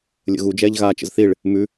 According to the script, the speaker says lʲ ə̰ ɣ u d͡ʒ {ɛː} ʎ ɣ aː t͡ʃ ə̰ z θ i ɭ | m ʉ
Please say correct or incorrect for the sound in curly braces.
correct